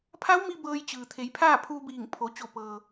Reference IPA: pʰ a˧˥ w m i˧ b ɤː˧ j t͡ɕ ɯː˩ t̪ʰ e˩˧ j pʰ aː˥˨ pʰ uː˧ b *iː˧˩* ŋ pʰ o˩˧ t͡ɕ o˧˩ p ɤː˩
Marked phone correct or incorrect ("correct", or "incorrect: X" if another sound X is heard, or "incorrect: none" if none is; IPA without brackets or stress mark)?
correct